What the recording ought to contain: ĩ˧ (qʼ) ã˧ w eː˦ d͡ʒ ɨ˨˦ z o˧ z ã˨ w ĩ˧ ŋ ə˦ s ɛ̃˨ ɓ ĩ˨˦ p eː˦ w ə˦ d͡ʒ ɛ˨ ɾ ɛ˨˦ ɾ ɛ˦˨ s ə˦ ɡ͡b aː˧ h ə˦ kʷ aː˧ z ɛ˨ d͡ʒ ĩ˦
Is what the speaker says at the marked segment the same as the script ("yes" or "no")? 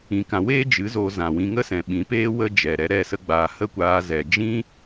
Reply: no